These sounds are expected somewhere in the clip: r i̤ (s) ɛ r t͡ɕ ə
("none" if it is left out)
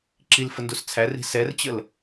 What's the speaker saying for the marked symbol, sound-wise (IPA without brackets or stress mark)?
s